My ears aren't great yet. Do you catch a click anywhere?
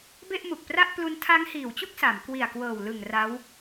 no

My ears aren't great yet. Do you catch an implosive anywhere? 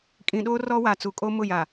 yes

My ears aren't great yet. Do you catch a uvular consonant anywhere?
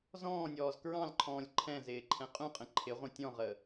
yes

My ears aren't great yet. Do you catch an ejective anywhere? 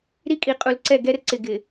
yes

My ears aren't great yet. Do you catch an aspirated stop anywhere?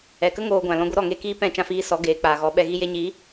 no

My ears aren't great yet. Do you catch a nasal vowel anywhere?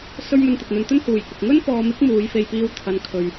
no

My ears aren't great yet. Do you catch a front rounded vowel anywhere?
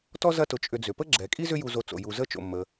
yes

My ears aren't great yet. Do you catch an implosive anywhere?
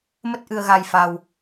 no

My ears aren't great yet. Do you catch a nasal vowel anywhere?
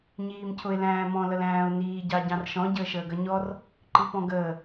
yes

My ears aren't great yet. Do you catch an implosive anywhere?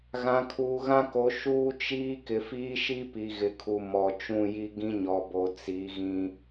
no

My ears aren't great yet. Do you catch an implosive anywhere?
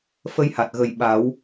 yes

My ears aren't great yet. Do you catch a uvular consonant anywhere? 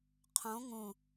yes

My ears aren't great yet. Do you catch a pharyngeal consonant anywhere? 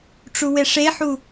yes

